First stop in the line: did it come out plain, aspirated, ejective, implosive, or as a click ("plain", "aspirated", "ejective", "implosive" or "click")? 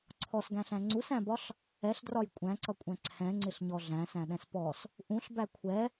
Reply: click